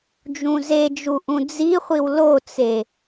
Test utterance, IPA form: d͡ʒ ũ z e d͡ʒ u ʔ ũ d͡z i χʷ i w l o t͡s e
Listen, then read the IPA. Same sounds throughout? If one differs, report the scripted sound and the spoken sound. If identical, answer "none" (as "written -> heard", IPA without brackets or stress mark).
none